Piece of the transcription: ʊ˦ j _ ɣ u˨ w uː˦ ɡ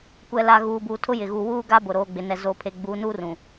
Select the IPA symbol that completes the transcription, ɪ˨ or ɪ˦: ɪ˨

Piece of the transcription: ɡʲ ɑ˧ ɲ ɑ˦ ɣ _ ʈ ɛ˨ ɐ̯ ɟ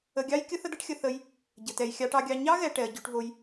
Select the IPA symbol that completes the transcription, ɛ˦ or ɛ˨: ɛ˨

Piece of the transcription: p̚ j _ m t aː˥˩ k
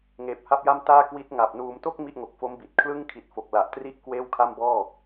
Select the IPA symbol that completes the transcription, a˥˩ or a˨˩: a˥˩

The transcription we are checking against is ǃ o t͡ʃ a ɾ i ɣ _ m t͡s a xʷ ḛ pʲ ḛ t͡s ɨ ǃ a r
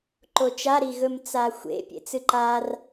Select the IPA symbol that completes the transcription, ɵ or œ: ɵ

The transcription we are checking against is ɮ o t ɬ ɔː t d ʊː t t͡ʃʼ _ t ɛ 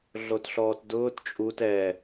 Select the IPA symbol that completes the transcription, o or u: u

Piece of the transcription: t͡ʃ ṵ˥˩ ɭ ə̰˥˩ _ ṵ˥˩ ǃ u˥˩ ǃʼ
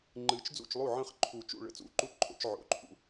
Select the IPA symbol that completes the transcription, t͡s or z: t͡s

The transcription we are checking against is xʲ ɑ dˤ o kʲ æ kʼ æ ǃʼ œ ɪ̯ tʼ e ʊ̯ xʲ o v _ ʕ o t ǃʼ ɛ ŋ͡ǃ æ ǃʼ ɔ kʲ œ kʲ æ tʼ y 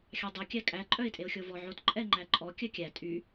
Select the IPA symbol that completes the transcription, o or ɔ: ɔ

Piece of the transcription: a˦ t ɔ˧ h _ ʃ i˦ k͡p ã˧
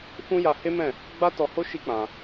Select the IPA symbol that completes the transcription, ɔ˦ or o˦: o˦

